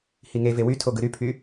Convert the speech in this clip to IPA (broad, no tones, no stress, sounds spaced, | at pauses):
h i ŋ e v e w y tʰ o ɡ ɯ ɾ y pʰ y